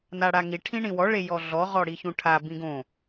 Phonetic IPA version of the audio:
n a ɽ a ŋ i ʈʰ ĩ ɳ ĩ w ɔ ɭ e j ɔ ɮ ɔ ʁ ɔ ɽ i ç ũ ʈʰ a b ĩ ɡ õ

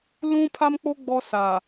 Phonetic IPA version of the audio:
l ũ˦ pʰ a˦ m k͡p o˦ ɡ͡b ɔ˦ s a˨

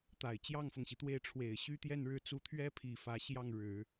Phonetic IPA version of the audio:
t̪ a˨˩ ɪ̯ t͡ɕ j ɑ˥˩ ŋ f ɤ˩ ŋ ɕ i˩ t̪ w e˥˩ ɪ̯ ʈ͡ʂʰ w e˨˩ ɪ̯ ɕ y˥ t̪ j ɛ˥˧ n ɻ ɻ̩˥˩ t͡s u˧˥ t̪ʰ ɥ ɛ˥ pʰ i˨˩ f ä˧˥ ɕ j ɑ˥˩ ŋ ɻ ɻ̩˨˩˦

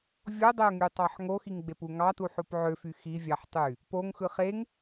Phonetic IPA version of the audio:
vʲ o dˤ e ʊ̯ ŋ y tˤ ɑ ħ ŋ o x i ŋ ɡ͡b e p u ŋ ɑ t u ħ o p ʕ ø f y x i vʲ ɑ ħ tˤ y | p o ŋ x ɯ χ e ŋ

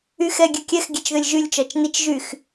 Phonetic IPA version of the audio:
y x ɛ ɡʲ ø kʲ ɛ x ɡʲ ɛ t͡ʃ ð ø lʲ ʒ y lʲ t͡ʃ ɒ t͡ʃ n i t͡ʃ ʒ y x

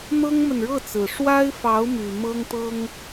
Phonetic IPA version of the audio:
n̪ ɤ˥ ŋ m ə˨ n ɻ ɤ˥˩ t͡s ɹ̩˨˩ ʂ w a˥ ɪ̯ f ɑ˧˥ ʊ̯ m y˨˩ m ɤ˥ ŋ t̪ ɤ˥ ŋ

